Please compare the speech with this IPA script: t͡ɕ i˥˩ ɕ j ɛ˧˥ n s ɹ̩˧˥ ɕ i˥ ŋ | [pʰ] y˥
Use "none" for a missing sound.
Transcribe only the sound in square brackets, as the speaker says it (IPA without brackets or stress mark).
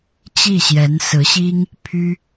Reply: pʰ